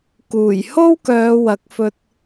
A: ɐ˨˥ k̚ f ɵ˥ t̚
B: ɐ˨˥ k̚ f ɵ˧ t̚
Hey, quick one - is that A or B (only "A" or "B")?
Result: B